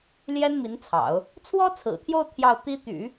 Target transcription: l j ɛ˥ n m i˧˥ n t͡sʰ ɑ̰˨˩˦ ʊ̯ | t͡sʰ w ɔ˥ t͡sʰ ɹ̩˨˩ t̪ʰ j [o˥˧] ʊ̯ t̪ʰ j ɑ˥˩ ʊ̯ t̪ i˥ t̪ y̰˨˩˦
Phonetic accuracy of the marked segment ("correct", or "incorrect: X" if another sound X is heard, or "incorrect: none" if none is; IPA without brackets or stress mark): correct